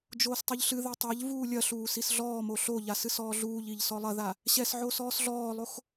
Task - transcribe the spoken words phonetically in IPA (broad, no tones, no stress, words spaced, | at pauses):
d͡ʒoːstˤɨʎɬɨðɘ tˤaʎvuː lʲɐɬuː sisɮɔːmo ɬoʎas ɨsɔːɮuːʎiʎ sɔlˠɐða | ɕɛsʕo sɔːsɮɔːlˠox